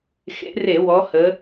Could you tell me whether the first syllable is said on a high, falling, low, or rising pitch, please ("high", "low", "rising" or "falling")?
rising